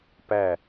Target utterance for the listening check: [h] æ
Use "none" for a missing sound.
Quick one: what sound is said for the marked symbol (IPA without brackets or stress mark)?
p